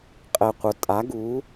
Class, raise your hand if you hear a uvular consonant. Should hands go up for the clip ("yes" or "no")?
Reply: yes